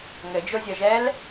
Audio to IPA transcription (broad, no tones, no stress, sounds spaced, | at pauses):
ŋ ɘ d͡ʒ o zʲ ɔ ʒ ɛː l